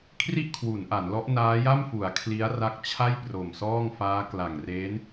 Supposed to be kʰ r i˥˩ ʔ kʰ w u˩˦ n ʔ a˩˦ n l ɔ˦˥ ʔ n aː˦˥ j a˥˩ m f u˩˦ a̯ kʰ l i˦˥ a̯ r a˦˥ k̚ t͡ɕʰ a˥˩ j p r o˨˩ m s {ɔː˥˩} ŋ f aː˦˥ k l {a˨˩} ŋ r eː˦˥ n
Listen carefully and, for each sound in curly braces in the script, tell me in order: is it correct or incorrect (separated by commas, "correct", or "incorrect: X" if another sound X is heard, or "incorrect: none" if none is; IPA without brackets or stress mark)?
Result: correct, correct